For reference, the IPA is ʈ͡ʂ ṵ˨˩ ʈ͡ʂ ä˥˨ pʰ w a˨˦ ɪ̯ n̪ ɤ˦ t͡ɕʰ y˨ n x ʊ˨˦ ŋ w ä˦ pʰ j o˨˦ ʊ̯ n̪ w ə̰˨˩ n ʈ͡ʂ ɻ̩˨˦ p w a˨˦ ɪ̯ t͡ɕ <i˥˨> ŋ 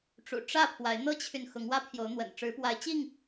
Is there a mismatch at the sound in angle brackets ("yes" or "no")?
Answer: no